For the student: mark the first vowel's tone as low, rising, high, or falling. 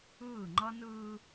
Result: falling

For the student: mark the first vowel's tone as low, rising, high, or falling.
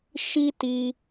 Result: high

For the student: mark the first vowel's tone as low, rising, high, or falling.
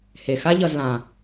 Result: low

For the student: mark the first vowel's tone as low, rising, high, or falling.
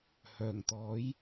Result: low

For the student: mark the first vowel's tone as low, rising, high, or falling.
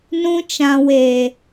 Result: high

